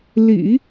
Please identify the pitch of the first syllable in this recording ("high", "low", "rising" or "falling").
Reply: low